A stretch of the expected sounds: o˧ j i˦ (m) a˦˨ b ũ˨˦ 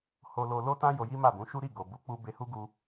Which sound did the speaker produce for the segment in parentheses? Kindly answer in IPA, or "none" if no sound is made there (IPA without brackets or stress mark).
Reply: m